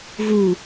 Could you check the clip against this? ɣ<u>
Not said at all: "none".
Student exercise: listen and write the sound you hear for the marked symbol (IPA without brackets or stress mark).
u